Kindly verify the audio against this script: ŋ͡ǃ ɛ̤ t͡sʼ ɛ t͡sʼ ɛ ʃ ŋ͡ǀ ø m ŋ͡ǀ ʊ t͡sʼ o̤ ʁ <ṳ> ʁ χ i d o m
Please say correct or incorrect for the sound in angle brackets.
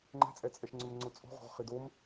incorrect